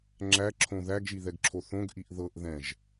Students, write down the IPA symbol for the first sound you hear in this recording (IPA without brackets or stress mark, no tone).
ŋ͡ǁ